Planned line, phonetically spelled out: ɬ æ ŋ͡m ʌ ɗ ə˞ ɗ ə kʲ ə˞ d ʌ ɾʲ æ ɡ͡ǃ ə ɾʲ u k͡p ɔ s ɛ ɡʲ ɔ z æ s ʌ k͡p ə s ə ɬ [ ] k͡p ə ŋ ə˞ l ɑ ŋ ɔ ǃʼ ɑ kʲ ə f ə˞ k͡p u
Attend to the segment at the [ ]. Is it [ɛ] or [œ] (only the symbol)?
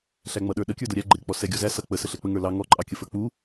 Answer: ɛ